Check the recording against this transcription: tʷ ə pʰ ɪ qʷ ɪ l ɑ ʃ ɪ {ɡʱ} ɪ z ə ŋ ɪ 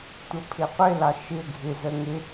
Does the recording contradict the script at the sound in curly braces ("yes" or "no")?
no